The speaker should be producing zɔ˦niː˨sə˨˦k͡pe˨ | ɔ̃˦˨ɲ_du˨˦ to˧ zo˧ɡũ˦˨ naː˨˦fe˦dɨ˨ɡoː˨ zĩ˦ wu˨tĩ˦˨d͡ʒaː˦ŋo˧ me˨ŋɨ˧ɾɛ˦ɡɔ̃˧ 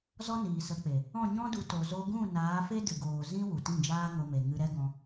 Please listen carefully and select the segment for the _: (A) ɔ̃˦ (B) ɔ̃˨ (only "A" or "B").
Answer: A